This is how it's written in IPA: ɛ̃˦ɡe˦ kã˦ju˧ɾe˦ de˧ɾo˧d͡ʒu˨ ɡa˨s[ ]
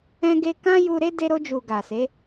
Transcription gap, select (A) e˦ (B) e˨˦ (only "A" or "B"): B